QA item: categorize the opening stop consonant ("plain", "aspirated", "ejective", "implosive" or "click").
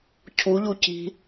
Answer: aspirated